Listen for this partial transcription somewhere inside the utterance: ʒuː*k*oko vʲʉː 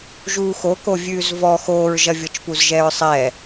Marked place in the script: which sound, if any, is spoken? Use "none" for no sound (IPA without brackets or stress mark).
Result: x